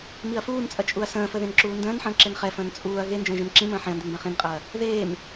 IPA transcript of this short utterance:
miɐ̯fuːnt͡sʼɐ t͡ʃʼuɐ̯sə̃ːfə ðẽnǁuːndə̃ːnħə̃ː ǁenχɛfə̃ːn t͡sʼuːɐ̯ ɣend͡ʒə̃ː ʒẽmǁĩmə̃ː ħẽɐ̯nden bɛ̃χĩnqʼɐː | ðeːm

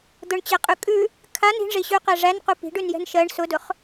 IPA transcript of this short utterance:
d̪ʊɳt͡ɕɛqʼʉ kʼʉ | kʰan i̤ɳʐiɕʉqɛ ʐænqu pi̤ɖʉnjɛ̤n ʃɜɳ sʊdʊχ

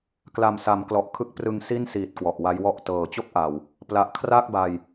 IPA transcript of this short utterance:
kla˨˩msa˩˦mklɔ˨˩ʔ kʰɯ˦˥k̚prɯ˧ŋsi˥˩nsiː˨˩t̚ kwɔ˨˩ʔwa˦˥jwɔ˥˩ʔ tɤː˨˩ t͡ɕo˥˩k̚ʔa˨˩w | pla˨˩ʔkʰra˥˩k̚ba˨˩j

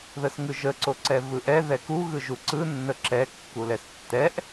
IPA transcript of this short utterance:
ðəsŋɯʒə ǀoǀɛvɯʔɛ ðɛku ɣɯʒuǀɯ nːəǁɛ kːulɛstːɛʔ

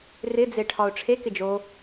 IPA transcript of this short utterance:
rɪd͡ze ʈʰɒʊ̯ʈ͡ʂʰekɪ d͡ʒo

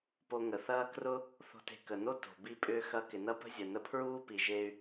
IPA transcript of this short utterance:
po˧ŋə˩θɐː˥ krʊ˥ | θo̤˧te̤˧ kə˩ no˥ to̤˩ bi˧pʼʏː˧ xɐ˧ kɪ˩nɐ˥ pə̤˥zʲə˩ nə˧pʰɹuː˥pi˩ ʒe˧y̯

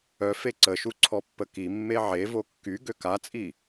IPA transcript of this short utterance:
œ feǀəʃu ǀʰɔpːəkimːe ʕevo kːy ɡøkat͡sʼi

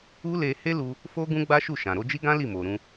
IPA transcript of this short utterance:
u˦le˧he˦lu˧ | fo˦ɡũ˦ɡ͡ba˦ ʃu˦˨ʃã˨ ɾo˧d͡ʒi˦ɡã˦ li˦˨mo˨ɾũ˧

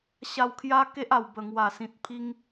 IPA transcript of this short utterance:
ɕa˧wkʰja˦ ke˦ʔa˨˩w bə˨˩ŋwa˨˩sĩ˨t̚ pʰi˦ŋ

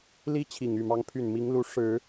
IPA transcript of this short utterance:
li˥t͡ɕʰi˨˩ŋ y˥˩mɑ˥ŋpʰy˥˩n mi˧˥ŋlu˧˥ ʂɻ̩˨˩˦

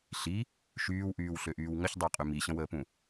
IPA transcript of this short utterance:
ɬi | ʃyːwʔyːwɬøʔyːw ŋəçdˤɛqʼy miɕə̃wəːpũ

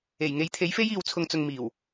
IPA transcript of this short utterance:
e˨˩jŋe˨˥jt̪ʰe˨˥jfe˥j iː˨wt͡sʰʊ˨ŋt͡sʊ˨ŋ miː˨˩w

